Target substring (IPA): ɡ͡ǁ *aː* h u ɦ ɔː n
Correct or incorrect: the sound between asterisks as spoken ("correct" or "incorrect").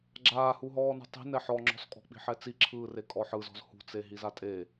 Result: correct